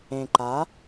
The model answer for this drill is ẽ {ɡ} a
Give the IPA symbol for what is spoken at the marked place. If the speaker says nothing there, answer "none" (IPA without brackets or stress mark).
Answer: ǃ